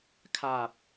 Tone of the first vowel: low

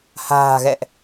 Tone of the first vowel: low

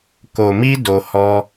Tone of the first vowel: low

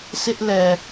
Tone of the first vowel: high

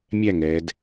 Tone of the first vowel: falling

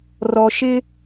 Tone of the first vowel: low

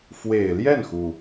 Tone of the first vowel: low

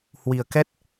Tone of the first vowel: low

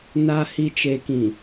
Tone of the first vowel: low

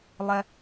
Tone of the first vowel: high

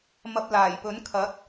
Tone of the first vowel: low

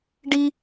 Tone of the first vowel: high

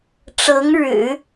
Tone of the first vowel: rising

